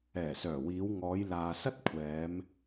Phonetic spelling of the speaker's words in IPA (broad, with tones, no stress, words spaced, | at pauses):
ɛː˨˩sœː˨˩wiː˨˧wŋɔː˨˧j laː˨sɐ˥t̚kʷʰɛː˨˧m